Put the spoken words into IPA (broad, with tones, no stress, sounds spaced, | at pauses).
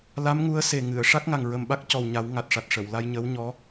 l a˧˥ m ŋ u˧˥ ə̯ s e˨˩ ŋ ɨ˨˩˨ ə̯ ʂ a˦˥ k̚ ŋ a˨˩ ŋ ɹ ə˨˩ m ɓ a˦˥ k̚ c ɔ˨˩ w ɲ a˨˩˦ w ŋ a˨˩ t̚ ʂ a˨˩ t̚ ʂ ə˨˩˨ w l a˧ j ɲ ə˧˥ w ɲ ɔ˧˥